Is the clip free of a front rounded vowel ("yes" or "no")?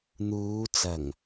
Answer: yes